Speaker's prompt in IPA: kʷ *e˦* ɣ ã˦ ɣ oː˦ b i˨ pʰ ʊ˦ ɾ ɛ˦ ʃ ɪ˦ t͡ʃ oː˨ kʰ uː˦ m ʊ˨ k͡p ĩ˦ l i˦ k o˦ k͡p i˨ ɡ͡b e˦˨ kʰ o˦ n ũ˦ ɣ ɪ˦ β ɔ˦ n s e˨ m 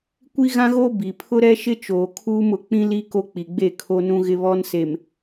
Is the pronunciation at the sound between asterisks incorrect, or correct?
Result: incorrect